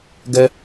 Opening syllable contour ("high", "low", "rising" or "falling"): high